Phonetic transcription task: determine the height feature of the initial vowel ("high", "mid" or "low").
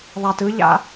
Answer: low